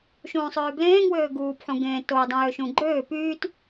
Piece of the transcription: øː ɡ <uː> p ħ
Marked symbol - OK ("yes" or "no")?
yes